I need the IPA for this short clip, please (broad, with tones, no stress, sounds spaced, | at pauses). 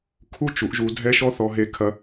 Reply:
kʰ u˦ t͡ʃ u˨˦ ʔ ʒ u˧ dʱ ɛ˦ ʃ ɔ˦ θ ɔ˧ ɦ e˧ kʰ ɐ˧